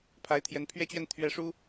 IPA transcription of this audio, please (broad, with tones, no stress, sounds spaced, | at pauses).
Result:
pʰ a˧˥ ɪ̯ t̪ʰ j ɛ˧˥ n pʰ ɥ ɛ˥ t͡ɕ ɥ ɛ˥˧ n t̪ʰ ɥ ɛ˥˩ ʂ u˥